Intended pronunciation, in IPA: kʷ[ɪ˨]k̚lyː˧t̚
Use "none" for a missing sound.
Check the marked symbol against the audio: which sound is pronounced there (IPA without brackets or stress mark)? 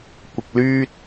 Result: ɪ˨